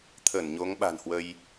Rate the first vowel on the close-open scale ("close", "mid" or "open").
mid